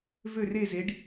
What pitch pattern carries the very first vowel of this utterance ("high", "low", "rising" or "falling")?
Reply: falling